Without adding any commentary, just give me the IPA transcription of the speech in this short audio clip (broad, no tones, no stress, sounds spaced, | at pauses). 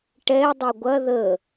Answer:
ʈ ɛ dˤ e ɡʷ ɐ ð ə